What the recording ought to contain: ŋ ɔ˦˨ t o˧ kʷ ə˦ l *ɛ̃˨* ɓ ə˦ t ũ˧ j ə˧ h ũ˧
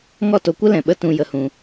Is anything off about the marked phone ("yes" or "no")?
no